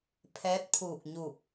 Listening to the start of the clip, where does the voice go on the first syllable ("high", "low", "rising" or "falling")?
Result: rising